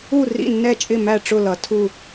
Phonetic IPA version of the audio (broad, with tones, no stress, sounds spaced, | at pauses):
u˥˨ r ḭ˥˨ nː ɛ˥˨ t͡ʃʼ ɪ˥˨ m æ˥˨ ʈ͡ʂ ʊ˥˨ l ʌ˨˦ tʰ u˥˨